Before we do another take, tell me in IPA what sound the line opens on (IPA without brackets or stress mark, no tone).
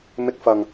m